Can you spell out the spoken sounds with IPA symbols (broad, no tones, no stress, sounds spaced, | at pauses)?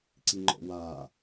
ǀ i ŋ͡ǃ ɔ̰ w aː